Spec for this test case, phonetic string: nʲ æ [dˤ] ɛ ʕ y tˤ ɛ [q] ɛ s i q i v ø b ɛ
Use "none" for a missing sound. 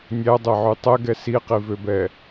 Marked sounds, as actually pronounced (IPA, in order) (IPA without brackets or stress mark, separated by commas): dˤ, ɡ